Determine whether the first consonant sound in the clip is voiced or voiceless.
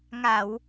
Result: voiced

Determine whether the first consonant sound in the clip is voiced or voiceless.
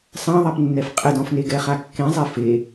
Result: voiceless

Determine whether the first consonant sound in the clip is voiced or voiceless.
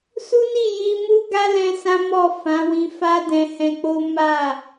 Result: voiceless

